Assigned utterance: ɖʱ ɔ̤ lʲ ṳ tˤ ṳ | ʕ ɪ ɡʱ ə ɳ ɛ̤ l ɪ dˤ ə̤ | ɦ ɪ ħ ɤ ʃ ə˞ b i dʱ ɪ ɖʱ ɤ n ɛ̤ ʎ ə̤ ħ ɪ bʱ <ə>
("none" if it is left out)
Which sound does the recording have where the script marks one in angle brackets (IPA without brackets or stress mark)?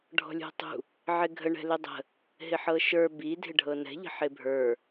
ə˞